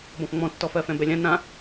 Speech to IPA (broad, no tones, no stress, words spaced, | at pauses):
bɔ̃fŋ͡mɔ̃tːɔ fɜfɛ̃bɛlʲã nã